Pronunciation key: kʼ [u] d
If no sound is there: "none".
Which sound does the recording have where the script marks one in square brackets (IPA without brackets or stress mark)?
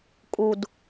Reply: u